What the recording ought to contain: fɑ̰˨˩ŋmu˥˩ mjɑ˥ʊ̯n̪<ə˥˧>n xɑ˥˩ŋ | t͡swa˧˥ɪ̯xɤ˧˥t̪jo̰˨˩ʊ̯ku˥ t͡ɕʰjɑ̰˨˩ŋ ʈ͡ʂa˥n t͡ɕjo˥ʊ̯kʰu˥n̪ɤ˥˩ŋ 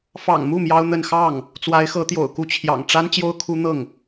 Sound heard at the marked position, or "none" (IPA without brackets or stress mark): ə˥˧